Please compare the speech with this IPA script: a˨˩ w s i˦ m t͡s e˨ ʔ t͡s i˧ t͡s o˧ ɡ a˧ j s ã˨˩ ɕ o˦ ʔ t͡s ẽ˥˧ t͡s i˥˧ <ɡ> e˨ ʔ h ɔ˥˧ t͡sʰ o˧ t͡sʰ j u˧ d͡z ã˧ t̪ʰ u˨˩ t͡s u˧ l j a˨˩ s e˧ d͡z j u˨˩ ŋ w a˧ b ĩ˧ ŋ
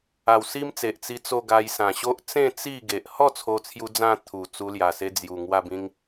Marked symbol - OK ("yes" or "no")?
yes